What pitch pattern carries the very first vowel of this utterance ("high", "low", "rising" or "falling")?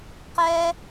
high